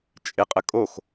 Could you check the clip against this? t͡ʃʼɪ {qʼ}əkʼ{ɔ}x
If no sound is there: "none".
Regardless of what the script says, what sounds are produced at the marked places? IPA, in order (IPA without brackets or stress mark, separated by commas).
qʼ, o